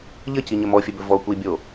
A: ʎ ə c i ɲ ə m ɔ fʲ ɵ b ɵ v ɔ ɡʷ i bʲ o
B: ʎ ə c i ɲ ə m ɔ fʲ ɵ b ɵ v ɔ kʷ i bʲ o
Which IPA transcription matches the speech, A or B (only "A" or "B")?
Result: B